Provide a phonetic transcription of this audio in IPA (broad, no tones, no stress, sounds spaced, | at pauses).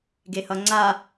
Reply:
ɡ e h ʌ ŋ͡ǀ a